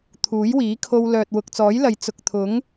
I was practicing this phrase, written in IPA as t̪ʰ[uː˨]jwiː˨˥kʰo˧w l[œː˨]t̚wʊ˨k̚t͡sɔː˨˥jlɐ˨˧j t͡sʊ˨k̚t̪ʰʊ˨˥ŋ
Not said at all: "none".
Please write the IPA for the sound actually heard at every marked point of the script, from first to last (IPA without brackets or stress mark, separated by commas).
uː˨˥, œː˨